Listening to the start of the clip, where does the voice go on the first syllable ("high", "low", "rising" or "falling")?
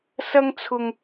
high